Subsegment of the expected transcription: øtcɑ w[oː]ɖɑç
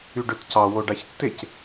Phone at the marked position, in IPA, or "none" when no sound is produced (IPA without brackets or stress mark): o